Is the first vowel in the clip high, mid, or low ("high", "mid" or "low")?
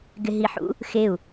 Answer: high